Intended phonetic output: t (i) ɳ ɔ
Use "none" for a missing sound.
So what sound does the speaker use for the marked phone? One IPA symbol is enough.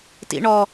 ḭ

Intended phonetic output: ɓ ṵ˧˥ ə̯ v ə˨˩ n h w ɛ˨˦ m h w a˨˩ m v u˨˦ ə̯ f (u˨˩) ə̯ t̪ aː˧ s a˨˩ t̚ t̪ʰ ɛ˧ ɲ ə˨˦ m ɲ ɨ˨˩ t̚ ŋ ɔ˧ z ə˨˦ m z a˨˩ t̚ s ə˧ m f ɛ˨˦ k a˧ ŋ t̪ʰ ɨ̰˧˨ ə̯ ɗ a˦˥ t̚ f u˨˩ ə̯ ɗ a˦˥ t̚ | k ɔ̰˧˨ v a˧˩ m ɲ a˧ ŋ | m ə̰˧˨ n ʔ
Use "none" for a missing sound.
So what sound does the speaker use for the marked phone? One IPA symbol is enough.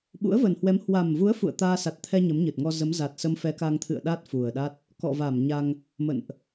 ṵ˧˨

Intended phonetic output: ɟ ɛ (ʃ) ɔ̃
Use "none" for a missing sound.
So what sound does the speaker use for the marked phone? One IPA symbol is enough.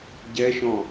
ʃ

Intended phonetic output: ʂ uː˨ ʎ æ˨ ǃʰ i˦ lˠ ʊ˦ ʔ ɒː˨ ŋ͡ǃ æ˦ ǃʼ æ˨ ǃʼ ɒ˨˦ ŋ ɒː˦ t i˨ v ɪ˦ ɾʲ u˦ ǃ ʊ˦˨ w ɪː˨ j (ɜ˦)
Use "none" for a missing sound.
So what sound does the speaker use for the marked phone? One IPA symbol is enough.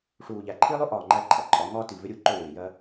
ɜ˦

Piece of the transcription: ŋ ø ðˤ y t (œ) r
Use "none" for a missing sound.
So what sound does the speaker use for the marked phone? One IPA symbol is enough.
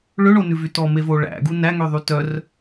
œ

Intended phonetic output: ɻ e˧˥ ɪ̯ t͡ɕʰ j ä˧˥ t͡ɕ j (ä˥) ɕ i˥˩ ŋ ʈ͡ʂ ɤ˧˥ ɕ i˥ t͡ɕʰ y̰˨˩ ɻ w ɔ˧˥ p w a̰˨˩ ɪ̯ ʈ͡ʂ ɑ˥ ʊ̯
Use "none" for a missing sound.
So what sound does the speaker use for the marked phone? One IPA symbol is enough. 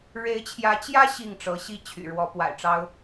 ä˥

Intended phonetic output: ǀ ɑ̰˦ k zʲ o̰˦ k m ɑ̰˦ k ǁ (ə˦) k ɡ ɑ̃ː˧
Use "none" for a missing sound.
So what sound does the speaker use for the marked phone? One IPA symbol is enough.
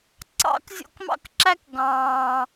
æ˦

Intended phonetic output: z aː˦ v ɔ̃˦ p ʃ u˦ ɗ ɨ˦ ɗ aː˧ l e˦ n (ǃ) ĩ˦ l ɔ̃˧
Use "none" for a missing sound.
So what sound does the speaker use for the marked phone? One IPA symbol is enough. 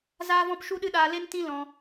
t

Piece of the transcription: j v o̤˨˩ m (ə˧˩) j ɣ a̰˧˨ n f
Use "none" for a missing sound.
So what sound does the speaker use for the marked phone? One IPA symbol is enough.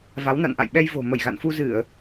ə˧˩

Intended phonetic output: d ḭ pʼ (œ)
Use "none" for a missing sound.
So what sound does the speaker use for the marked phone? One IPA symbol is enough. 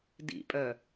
œ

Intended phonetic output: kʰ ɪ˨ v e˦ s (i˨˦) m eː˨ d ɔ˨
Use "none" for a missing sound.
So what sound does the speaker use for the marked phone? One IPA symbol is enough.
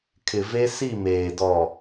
i˦˨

